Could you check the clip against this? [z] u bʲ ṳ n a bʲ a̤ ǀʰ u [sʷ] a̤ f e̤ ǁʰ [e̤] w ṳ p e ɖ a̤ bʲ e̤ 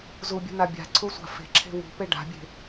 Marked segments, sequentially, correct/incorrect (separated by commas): correct, correct, correct